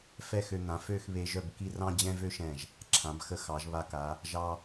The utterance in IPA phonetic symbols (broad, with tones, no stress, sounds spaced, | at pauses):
f ɛ˥˧ x ø˧ n̪ ã˩˧ f ø˥˧ x β e˧ ʒ œ˥˧ b k i˥˧ r ɑ̃˥ d͡ʑ ɛ̃˥ v ø˥ ʃ ɛ̃˧˩ ʒ | ǁʰ ã˩˧ b x ə˧ x ɑ˩˧ ʒ β a˧ k a˩˧ | ʒ ɑ˧